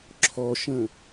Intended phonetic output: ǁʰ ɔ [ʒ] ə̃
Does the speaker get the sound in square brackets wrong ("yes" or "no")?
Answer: yes